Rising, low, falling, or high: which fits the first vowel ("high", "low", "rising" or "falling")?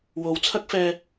rising